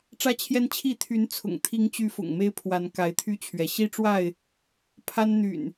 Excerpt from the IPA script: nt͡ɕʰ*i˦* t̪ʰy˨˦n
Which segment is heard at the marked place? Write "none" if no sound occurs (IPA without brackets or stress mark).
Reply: i˥˨